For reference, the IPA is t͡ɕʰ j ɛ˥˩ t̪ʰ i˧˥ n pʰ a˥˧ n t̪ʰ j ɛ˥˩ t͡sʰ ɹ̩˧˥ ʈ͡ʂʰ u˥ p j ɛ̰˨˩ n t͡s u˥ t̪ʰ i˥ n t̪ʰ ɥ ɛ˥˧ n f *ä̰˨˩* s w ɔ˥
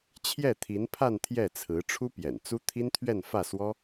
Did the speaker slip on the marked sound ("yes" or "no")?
yes